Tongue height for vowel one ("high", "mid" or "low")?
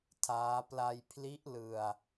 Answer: low